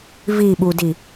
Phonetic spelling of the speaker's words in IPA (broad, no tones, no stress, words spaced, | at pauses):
viɓudi